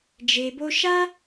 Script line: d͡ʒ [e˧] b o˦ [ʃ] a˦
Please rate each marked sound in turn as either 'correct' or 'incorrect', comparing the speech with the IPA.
correct, correct

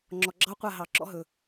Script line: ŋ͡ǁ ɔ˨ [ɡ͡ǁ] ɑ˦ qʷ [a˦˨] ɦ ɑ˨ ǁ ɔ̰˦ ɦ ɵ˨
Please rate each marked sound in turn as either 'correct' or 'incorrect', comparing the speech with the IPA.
correct, correct

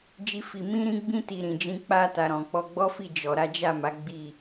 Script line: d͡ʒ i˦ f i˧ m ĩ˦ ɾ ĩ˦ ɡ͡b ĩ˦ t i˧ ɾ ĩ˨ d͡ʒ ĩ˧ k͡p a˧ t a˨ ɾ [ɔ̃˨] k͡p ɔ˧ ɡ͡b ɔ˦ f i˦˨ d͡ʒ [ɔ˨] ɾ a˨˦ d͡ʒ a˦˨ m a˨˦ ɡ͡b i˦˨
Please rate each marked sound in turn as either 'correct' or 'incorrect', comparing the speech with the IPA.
correct, correct

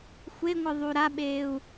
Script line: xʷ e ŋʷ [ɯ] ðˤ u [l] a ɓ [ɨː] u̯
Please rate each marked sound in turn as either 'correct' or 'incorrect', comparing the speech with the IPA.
correct, incorrect, incorrect

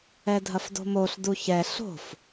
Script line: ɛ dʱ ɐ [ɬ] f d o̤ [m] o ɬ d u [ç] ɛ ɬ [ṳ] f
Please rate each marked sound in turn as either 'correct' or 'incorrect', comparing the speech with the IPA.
incorrect, correct, correct, incorrect

